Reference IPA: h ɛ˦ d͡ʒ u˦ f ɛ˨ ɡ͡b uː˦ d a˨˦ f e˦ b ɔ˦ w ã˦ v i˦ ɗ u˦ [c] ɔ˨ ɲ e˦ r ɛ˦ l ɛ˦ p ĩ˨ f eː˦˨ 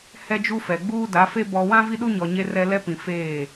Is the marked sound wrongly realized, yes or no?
yes